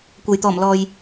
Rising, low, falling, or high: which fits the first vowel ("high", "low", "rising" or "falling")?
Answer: low